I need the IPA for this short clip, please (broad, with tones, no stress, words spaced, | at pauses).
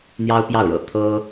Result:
n̪jɑ˥ʊ̯pjɑ˥˩ʊ̯ɻɤ̰˨˩ t̪ʰɤ˥